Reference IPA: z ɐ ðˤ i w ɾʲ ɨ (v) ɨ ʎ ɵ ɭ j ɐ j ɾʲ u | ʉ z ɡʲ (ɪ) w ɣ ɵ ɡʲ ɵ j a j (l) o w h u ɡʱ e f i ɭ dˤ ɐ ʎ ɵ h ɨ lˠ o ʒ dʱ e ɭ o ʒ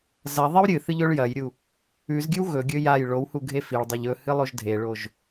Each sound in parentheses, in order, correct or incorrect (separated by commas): incorrect, incorrect, incorrect